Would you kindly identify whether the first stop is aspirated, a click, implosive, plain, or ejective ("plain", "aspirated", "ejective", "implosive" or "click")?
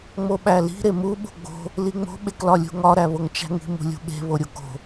implosive